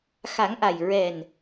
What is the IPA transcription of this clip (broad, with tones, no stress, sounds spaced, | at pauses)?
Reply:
x a˨˩˦ ŋ ʔ a˨˩ j ɹ ɛ˨˩ n